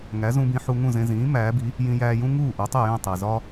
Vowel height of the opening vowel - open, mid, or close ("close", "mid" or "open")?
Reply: open